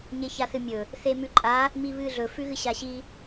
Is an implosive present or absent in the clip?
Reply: absent